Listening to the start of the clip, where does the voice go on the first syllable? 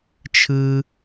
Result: high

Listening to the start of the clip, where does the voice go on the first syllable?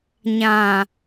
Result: low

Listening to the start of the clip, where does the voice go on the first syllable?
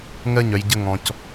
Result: falling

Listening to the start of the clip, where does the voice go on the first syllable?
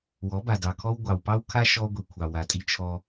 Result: rising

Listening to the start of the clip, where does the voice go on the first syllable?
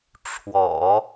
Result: low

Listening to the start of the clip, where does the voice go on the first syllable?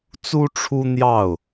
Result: high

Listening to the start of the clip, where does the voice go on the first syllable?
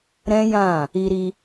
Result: high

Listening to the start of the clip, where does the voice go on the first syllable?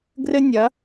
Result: high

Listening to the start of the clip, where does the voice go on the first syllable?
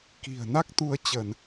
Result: low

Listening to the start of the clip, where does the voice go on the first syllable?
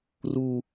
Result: high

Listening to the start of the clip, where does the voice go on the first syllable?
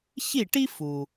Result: falling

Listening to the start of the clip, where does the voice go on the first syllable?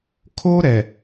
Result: high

